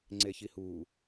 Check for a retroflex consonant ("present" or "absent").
absent